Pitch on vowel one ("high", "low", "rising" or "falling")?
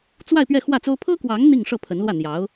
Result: falling